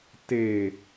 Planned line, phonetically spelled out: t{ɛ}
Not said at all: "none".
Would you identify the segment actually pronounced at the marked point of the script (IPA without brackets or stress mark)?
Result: e